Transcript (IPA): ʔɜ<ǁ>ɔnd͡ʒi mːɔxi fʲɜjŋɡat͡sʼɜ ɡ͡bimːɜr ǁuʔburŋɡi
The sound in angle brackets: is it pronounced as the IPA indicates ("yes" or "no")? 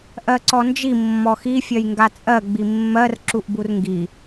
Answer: no